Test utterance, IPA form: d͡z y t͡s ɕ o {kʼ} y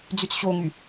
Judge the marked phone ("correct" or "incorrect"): incorrect